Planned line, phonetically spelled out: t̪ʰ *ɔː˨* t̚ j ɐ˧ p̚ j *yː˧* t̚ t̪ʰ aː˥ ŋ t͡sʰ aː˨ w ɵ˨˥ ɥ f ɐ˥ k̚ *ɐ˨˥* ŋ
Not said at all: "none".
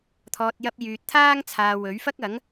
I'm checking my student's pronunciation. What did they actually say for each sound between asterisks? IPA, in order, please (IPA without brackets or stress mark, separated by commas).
ɔː˨, yː˨, ɐ˨˥